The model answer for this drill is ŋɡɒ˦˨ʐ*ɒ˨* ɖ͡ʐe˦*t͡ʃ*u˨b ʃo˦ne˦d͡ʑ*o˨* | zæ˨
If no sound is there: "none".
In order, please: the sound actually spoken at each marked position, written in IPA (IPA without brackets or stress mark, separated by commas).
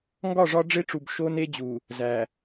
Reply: ɒ˦, ʈ͡ʂ, u˨